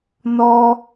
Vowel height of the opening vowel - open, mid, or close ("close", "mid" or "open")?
mid